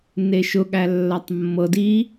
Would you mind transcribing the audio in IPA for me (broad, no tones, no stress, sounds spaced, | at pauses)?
n e ʃ ʊ ɠ æ lː a tˤ mː ɤ d i